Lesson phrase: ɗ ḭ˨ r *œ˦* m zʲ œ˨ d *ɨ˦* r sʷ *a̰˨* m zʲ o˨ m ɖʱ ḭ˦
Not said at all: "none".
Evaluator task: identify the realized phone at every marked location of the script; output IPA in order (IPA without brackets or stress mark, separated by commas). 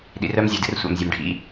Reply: œ˦, ɨ˦, a̰˨